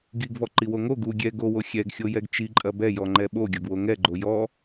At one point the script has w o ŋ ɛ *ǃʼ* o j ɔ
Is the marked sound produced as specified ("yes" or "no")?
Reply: no